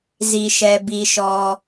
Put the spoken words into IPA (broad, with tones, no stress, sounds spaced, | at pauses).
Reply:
z i˨ ʃ ɛ˨ b i˨ ʃ ɔ˨